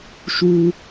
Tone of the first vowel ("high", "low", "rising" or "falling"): high